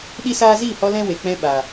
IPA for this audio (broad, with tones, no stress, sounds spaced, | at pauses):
ɗ i˦ s aː˦ z iː˦˨ h ɔ˧ l ɛ̃˦ w e˨ k͡p ɛ̃˧ ɓ aː˨